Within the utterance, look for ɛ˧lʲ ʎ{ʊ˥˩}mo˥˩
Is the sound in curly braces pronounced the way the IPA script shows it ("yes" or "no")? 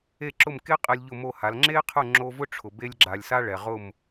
yes